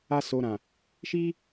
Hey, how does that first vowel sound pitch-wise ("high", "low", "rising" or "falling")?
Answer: high